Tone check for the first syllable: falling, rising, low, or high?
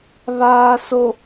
low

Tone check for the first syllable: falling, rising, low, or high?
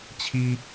high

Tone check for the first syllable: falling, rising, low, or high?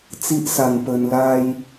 high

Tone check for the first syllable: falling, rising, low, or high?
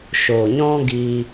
low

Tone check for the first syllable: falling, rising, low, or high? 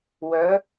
rising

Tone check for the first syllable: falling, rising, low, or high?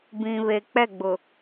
low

